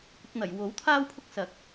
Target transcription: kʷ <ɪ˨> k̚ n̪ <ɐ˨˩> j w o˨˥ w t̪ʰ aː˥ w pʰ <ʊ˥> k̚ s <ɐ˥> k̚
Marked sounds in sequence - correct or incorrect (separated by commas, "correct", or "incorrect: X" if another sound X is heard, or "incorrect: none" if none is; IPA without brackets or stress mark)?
correct, correct, correct, incorrect: ɐ˨˥